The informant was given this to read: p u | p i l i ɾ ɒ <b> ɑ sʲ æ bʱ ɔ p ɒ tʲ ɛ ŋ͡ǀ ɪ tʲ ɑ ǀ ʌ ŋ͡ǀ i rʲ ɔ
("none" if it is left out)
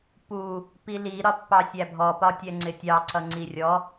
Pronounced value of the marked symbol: pː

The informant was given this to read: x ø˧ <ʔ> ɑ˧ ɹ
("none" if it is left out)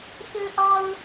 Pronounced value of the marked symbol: ʔ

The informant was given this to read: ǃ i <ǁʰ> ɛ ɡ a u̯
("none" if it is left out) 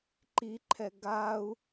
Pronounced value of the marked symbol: ǃʰ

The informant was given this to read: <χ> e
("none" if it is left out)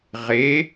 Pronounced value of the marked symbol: ʁ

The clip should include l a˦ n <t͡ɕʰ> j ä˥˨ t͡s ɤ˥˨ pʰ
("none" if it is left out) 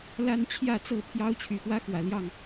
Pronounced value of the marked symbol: t͡ɕʰ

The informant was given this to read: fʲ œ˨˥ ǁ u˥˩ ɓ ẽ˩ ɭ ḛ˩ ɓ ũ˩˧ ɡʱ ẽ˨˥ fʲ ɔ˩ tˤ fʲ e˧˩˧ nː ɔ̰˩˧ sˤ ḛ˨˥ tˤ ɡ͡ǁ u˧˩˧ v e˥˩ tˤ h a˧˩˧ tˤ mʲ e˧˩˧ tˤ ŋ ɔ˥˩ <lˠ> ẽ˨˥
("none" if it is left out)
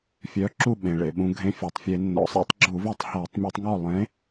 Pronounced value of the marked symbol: lˠ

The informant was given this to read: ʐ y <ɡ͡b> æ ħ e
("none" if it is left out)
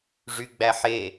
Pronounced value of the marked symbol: ɡ͡b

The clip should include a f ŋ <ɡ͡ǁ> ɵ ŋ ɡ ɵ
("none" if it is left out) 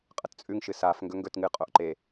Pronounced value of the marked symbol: ɡ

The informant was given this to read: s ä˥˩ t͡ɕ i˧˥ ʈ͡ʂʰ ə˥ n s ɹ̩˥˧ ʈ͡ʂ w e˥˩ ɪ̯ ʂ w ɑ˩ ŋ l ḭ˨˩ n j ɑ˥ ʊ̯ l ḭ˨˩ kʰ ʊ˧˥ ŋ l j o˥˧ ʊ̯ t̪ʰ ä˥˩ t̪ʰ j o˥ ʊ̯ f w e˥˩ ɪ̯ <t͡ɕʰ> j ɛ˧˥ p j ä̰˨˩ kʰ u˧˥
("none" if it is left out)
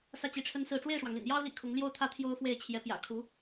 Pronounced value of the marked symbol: t͡ɕʰ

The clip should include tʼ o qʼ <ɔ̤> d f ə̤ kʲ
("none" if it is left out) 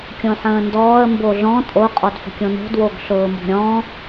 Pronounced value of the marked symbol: ɔ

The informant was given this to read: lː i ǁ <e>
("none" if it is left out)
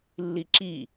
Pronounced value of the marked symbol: i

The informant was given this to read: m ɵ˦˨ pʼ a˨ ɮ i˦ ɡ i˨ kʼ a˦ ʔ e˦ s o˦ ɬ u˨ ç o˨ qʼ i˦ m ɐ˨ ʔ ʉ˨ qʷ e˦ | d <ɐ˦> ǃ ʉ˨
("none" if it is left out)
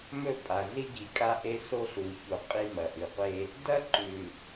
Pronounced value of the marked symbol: ɐ˦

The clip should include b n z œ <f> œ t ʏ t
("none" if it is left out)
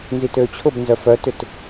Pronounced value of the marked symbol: f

